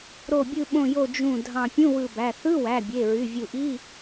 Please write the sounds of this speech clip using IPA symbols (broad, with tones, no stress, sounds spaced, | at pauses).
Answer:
ɾ o˧˩ bʲ ɯ˧˩ ɓ õ˧˩ j o˧˩ d͡ʒ ũ˧˩ dʱ ɑ̃˧˩ pʲ ũ˧˥˧ w ɯ˧˩ b æ˩˧˩ θ ɯ˧˥˧ w æ˩˧˩ bʲ e˩˧˩ ɹ y˩˧˩ vʲ u˧˩ ʔ i˧˥˧